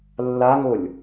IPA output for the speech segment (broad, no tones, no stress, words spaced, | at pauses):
lːaŋolʲ